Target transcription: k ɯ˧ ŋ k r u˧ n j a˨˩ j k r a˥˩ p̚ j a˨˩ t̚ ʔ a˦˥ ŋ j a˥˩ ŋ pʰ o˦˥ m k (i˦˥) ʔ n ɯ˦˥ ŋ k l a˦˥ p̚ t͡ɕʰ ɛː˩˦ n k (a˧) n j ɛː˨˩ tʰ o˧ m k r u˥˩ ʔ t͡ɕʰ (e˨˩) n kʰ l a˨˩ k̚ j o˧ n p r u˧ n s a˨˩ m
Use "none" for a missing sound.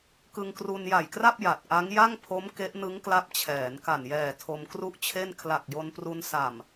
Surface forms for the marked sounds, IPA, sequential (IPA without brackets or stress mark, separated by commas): e˦˥, a˨˩, e˥˩